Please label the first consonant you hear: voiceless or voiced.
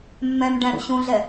voiced